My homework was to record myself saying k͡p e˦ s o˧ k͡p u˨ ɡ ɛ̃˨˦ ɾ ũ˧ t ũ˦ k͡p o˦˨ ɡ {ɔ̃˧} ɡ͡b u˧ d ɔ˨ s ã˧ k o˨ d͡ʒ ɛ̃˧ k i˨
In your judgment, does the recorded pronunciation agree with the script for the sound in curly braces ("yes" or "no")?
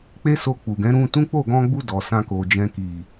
yes